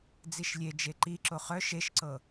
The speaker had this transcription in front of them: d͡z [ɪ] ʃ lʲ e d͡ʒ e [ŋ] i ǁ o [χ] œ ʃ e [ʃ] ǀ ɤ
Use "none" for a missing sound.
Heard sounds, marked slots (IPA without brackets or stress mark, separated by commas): i, ǃ, χ, ʃ